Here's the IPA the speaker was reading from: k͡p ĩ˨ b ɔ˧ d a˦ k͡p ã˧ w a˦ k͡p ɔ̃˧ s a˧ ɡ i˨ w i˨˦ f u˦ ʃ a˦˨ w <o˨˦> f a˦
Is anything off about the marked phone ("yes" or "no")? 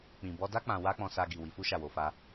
no